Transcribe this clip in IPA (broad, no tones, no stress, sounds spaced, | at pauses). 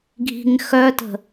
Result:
ɡʱ i̤ ŋ x œ t ə̤